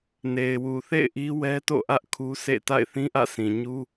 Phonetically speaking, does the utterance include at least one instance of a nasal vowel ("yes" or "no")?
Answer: yes